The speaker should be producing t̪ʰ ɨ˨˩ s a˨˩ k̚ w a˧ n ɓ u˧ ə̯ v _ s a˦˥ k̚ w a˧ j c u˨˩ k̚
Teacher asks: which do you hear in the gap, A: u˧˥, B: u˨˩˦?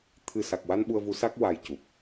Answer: A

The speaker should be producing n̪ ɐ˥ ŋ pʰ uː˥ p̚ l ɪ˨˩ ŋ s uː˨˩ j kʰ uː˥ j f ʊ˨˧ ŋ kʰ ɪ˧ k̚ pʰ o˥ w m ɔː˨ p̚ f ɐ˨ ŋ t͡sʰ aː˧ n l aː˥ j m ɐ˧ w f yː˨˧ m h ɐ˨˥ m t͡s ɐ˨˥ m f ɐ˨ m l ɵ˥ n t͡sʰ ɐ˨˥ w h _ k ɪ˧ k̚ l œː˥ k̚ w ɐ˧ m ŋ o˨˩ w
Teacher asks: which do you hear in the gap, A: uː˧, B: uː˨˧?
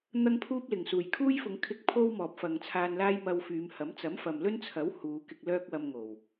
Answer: B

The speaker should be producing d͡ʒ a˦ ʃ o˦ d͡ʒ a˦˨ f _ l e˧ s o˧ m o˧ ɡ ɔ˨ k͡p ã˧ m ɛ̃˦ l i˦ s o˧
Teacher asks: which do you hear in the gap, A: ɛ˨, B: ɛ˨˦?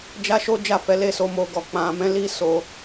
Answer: B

